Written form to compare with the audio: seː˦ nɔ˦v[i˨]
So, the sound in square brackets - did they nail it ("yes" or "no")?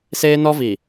yes